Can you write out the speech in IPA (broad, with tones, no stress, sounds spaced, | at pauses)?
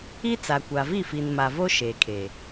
i˦ t͡s a˨ kʷ a˨ v i˦˨ f i˨ n m a˨ v o˦ ʃ eː˨ kʰ eː˨